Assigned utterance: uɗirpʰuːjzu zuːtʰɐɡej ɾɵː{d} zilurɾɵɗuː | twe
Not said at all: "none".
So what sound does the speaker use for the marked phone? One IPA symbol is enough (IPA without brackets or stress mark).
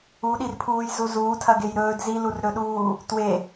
d